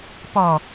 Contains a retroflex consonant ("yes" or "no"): no